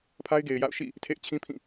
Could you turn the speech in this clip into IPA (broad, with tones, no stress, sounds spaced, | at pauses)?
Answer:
pʰ a˦ ɪ̯ ɡ e˨ ɪ̯ j a̰˦˨ ʊ̯ ʃ ḭ˦˨ | tʰ ḛ˦˨ ɪ̯ t͡ɕʰ ĩ˦ pʰ ĩ˦˨